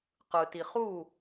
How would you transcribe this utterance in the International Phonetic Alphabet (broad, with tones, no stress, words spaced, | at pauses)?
qɯ˨ ti˨ χu˦˨